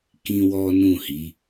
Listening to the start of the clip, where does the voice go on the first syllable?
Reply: high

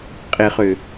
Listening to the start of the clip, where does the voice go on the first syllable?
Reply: low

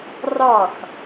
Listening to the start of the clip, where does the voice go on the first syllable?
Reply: falling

